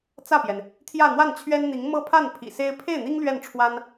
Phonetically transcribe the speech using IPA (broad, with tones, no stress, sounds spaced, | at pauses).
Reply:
t͡s ä˥˩ p j ɛ˩ n | t̪ʰ j ä˥˧ n̪ w a˥˩ n t͡ɕʰ ɥ ɛ˥ n n̪ i˧˥ ŋ m ɤ˥ pʰ a˥˩ n pʰ ḭ˨˩ s e˥ ɪ̯ pʰ e˥˩ ɪ̯ n̪ i˥ ŋ l ɥ ɛ˥˩ n ʈ͡ʂʰ w a˥ n